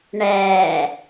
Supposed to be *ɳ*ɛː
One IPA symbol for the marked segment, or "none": ɳ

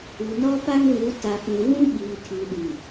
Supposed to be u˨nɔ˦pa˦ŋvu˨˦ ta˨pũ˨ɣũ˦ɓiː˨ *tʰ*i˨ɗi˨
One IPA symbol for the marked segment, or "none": tʰ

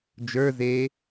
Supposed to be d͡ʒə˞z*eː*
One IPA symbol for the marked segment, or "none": eː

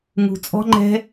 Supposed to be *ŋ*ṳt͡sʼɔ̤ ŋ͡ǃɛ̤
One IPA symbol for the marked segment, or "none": ŋ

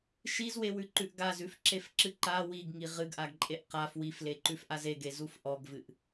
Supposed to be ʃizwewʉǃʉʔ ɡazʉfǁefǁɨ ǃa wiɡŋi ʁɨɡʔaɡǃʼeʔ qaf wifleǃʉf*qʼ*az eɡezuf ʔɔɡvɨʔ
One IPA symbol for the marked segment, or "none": ʔ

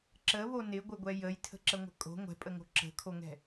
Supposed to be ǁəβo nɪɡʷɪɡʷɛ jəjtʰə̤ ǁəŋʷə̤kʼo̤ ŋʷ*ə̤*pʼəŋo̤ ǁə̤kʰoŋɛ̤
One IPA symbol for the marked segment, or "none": ɛ̤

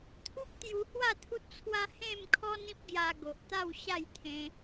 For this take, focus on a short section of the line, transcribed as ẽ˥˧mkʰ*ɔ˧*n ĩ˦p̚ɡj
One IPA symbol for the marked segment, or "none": ɔ˦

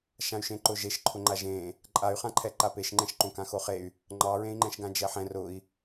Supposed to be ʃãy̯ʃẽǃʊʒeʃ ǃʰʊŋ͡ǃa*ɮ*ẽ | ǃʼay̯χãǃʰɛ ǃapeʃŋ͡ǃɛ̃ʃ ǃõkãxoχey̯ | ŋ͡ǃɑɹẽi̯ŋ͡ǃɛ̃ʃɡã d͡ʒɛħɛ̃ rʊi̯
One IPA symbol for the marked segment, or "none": ʒ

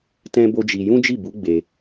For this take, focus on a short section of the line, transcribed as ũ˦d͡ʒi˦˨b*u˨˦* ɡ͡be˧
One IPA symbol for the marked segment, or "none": u˨˦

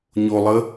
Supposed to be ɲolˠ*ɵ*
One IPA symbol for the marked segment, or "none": ə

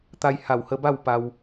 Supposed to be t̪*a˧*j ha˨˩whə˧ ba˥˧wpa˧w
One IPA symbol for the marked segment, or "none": a˧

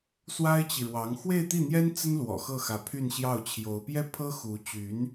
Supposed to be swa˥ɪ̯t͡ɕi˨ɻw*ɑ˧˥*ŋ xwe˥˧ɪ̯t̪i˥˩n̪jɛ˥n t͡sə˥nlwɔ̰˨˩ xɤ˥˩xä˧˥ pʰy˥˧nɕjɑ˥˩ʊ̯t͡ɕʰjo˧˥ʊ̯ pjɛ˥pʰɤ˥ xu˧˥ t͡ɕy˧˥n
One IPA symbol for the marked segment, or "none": ɑ˧˥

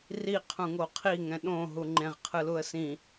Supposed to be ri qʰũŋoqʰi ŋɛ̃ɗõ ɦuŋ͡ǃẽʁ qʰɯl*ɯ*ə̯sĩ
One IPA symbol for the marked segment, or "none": u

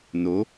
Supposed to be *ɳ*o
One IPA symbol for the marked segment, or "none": n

